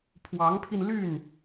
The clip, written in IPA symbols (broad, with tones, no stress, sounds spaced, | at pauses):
pʰ w ɑ˧˥ ŋ pʰ i˧ n l y˥˩ n